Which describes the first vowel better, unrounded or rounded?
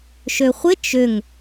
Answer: rounded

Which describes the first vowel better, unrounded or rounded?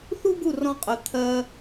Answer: rounded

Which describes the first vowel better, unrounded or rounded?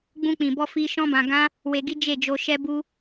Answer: rounded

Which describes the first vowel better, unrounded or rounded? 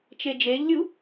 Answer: unrounded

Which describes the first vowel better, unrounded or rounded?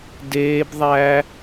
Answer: unrounded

